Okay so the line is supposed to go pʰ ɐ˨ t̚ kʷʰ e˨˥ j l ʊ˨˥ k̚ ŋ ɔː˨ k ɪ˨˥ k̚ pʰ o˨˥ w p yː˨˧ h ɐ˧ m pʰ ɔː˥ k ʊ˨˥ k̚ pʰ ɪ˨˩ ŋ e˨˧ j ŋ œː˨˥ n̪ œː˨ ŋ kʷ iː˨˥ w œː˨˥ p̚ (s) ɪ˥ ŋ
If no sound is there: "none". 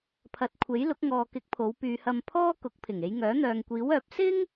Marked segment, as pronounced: s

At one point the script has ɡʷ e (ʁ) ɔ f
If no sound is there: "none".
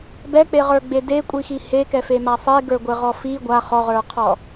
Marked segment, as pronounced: ʁ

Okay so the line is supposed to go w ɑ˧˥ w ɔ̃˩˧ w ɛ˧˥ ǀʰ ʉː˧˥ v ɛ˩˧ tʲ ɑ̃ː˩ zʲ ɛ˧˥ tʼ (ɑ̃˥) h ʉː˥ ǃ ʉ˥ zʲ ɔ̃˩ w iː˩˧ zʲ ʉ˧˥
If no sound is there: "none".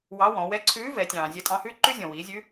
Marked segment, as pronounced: ɑ̃˧˥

